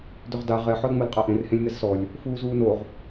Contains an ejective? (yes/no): yes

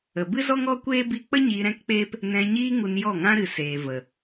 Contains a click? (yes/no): no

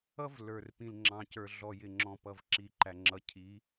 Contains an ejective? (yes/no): no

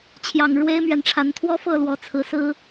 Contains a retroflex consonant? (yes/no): yes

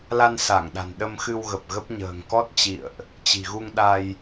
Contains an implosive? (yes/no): yes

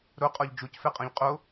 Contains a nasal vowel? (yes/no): yes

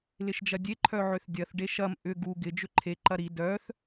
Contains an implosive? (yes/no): no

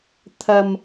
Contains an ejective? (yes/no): no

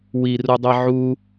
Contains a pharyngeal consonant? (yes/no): yes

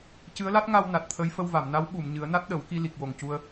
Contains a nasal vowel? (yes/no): no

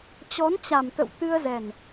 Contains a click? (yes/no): no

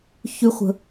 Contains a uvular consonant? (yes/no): yes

